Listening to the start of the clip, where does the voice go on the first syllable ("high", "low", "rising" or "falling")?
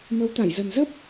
rising